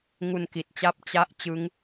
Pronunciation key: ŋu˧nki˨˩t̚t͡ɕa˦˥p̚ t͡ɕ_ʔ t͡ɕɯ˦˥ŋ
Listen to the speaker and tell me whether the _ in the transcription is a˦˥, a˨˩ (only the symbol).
a˦˥